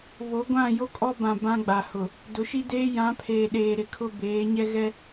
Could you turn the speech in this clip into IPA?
β o˨˦ ɡʷ ã˦˨ j o˦ kʼ ɔ˦ b ã˨ b ã˦ ɡ͡b a˨ h ʊ˨ | d ʊ˨˦ ʃ i˦ d eː˦ j ã˨˦ pʰ eː˨ ɗ eː˨ ɾ ɪ˨ kʰ ʊ˦ b eː˨˦ ɲ ɛ˦ ɣ ɛ˦

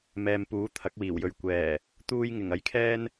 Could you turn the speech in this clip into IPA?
m ɛː˨ m p uː˨˥ t̪ʰ ɐ˨˥ k̚ w iː˨˩ w j ɵ˨ ɥ kʷ ɛː˨˩ | t̪ uː˧ j ŋ ɪ˨˩ ŋ ɐ˨˥ j kʰ ɛː˥ n

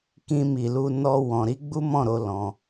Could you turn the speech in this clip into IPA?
k ĩ˧ m i˨ l u˧ n ɔ˦ w ɔ̃˧ ɾ i˦ ɡ͡b u˦ m ɔ̃˦˨ ɾ o˧ l ɔ̃˧

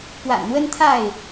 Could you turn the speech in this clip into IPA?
p w a̰˨˩ n n̪ w ə˦ n t̪ʰ a˥˨ ɪ̯

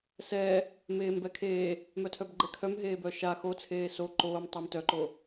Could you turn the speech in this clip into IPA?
s ɛ | m eː m b ɛ kʰ eː | m œ tʰ œ b ɡ͡ǃ ɛ kʰ œ m ɦ eː b œ ʃ a x o t͡sʰ eː s o ǃ oː m tˤ e m t œ ǃ o

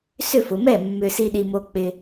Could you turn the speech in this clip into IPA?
s ʏ˥˩ f ʊ˨ m ɛ˥˩ mː ʏ˨ s i˨ ɗ i˨ m o˨ k͡p ɪ˨

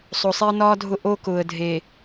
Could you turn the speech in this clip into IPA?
sˤ o˨ sˤ e˦ ə̯ n ɒː˦ dʱ ʊ˦˨ ʔ oː˦ k ʊː˨ ə̯ dʱ eː˨

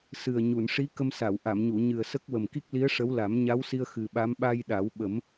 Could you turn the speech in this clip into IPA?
s ɨ˨˩ ə̯ ɲ u˨˩˨ n ʂ i˧˥ k ə˧ m s a˨˩˨ w ʔ a˨˩˨ m ɲ u˨˩˨ ɲ ɨ˨˩ ə̯ s ə˦˥ k̚ w ə˨˩ m k i˦˥ k̚ l i˧˥ ə̯ ʂ ə˧˥ w l a˨˩˦ m ɲ a˧˥ w s i˧ ə̯ x ɨ˨˩ ɓ a˧˥ m ɓ a˧ j ɗ a˨˩˦ w ɓ ə˨˩˦ m

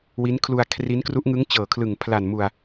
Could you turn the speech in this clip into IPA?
w i˦˥ n kʰ l u˧ a̯ kʰ r i˦˥ n k r u˦˥ ʔ ŋ ɯ˦˥ ŋ t͡ɕ ɤː˨˩ kʰ l ɯ˨˩ ŋ pʰ l a˨˩ n m u˨˩ a̯

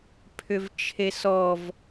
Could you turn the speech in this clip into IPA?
pʰ ʏ v t͡ʃʰ e s ɔ v

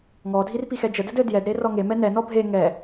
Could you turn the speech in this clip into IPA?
ŋ ɔ dʱ i r p i x ɛ d͡ʒ ə d ɘ d ɘ d j ɛ d ɾ e r ɔ ŋ e m ɛ n ɛ n ɔ bʱ e ŋ ɛ

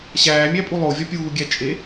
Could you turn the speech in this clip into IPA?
ɕ æː mʲ æ pʼ u lˠ o vʲ ɒ pʲ uː ɡʲ æ t͡ʃʼ e

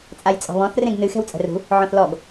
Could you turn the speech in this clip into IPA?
t͡sʼ a j t͡sʼ ɔ̤ β ɔ̃ θ r ẽ ɡ n ɨ x ɛ̤ w t͡sʼ ɛ̤ r ṳ | ʕ ɔ̃ θ l ɔ ɡ

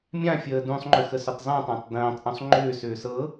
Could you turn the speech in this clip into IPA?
mʲ ã fʲ əː d ũ sˤ ŋ͡ǃ ʏ x ə s ʏ tˤ zˤ ĩ tˤ ã tˤ d ə̃ː tˤ ʔ ũ sˤ ŋ͡ǃ ʏː s ʏː s ɤ

